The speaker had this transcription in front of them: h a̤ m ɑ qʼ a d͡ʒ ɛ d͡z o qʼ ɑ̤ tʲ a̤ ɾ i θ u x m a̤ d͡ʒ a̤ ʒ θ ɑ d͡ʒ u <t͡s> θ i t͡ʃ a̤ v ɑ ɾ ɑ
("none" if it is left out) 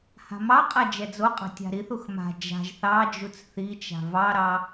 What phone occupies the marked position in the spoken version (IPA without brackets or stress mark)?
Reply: t͡s